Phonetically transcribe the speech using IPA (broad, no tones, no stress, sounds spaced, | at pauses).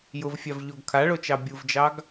j ʊ v fʲ a v ʎ o ɡ kʰ a ɭ o t͡ʃ ɑ bʲ u v d͡ʒ ɑ ɡ